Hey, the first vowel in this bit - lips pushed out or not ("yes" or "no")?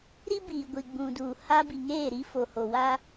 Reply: no